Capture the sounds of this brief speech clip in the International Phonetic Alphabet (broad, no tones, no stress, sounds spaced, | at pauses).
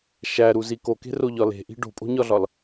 ʃ æ ɾ u z i k o k e̤ r o ʎ ɒ l e̤ ʔ i̤ ɖ o̤ pʼ o̤ ɲ ɒ ɮ ɒ l